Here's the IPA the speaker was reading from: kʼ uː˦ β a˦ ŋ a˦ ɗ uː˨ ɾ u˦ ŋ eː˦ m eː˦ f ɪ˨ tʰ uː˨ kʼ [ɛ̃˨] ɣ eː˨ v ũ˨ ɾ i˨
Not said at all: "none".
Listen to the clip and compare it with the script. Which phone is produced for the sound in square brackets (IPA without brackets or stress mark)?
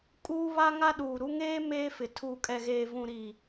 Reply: ɛ˨